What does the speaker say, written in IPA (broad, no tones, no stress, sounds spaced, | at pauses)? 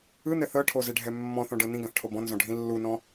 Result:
ɯ n̪ ɛ θ ɤ ʈʰ o z e ɖʱ ɛ mː ɔ̃ θ ɔ̃ ɖ ɤ n ĩ ɡ ã θ ʈʰ o b ɔ̃ n z ɔ̃ ɖʱ ĩ lː u n ɔ̃